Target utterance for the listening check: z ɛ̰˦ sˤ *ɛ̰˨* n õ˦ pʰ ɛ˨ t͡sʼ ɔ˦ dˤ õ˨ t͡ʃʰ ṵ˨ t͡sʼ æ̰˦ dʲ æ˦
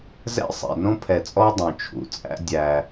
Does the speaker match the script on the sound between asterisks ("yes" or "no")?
yes